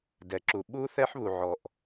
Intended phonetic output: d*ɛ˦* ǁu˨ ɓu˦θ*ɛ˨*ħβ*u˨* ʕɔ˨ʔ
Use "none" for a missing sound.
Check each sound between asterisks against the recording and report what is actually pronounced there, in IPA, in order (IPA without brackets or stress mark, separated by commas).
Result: ɛ˨, ɛ˦, u˨